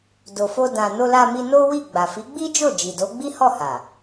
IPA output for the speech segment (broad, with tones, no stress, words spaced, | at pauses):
do˨fo˧dã˨ no˧la˧mi˧ no˦wi˦˨ ɡ͡ba˨fi˨˦ɡ͡bi˦d͡ʒo˦˨ d͡ʒi˨do˨˦ ɡ͡bi˦hɔ˦˨ha˨